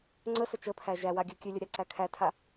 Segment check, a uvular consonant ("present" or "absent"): absent